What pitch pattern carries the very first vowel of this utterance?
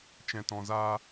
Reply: low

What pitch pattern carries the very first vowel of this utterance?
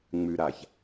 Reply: low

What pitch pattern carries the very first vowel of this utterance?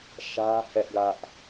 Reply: high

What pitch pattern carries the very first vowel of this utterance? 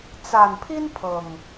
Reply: low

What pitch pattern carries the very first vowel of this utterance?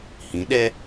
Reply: rising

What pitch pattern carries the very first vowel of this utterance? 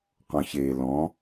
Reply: low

